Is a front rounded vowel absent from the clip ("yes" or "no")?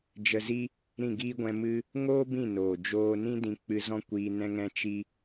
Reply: yes